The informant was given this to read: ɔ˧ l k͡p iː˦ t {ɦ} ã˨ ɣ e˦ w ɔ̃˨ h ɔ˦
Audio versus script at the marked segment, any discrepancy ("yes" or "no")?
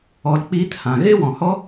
yes